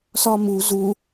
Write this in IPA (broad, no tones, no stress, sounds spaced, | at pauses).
s ɒ m u z u